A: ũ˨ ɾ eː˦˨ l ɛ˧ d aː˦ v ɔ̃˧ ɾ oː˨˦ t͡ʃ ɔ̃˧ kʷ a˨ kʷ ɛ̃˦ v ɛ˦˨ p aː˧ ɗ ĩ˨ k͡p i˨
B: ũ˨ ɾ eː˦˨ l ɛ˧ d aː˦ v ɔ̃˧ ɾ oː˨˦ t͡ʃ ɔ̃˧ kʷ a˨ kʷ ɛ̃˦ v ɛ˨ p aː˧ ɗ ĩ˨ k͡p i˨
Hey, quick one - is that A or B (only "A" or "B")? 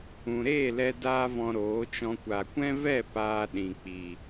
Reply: A